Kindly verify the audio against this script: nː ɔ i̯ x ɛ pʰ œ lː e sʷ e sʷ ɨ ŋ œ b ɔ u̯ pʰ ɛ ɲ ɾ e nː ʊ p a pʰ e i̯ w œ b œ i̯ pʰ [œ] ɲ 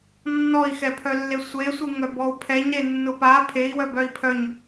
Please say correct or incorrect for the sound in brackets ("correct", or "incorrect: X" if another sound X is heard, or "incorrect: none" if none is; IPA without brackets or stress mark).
correct